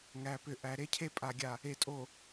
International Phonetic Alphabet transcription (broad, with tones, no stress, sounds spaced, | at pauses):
ŋ æ˨ p ʏ˨ ʔ æ˨ ɾ e˦ cʰ e˦ pʼ a˨ ɡʲ a˨ | e˨ tʼ o˨